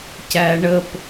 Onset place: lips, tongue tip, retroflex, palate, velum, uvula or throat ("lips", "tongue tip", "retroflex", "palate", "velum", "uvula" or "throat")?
palate